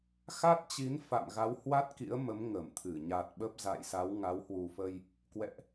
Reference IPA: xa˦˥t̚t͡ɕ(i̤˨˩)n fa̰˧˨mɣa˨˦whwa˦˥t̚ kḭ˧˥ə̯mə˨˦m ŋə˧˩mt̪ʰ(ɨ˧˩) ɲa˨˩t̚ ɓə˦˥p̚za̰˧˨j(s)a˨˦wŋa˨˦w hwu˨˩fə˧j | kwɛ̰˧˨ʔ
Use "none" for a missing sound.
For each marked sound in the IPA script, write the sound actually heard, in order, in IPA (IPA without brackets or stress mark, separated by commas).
i˨˦, ɨ˧˩, s